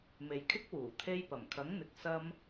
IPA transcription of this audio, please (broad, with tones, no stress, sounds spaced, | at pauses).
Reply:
m e˨ j kʰ ɪ˥ k̚ w uː˨˩ t̪ʰ e˧ j p ɐ˨˩ m kʰ ɐ˨˥ ŋ n̪ ɪ˨ k̚ s ɐ˥ m